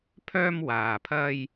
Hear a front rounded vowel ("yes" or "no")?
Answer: yes